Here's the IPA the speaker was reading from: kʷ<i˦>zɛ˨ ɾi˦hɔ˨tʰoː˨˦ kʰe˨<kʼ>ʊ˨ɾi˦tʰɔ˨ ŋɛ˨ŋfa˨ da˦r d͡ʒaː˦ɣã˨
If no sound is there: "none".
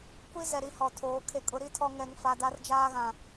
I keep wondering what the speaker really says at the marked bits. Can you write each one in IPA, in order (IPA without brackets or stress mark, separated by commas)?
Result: i˦, kʼ